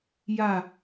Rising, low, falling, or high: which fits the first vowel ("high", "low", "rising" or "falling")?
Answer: falling